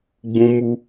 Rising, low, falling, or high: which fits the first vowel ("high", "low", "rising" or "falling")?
high